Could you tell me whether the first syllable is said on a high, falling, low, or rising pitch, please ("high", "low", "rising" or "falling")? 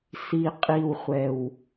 low